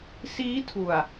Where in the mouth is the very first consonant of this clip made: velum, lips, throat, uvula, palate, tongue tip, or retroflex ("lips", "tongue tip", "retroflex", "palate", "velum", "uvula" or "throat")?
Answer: tongue tip